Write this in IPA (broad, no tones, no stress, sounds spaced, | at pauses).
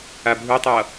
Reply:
a bʱ u tˤ ʌ